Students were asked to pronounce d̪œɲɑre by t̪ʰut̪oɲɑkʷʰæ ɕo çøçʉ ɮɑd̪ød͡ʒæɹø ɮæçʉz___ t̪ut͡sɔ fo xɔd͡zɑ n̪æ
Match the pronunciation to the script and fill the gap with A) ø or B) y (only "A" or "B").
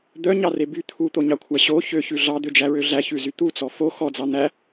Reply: B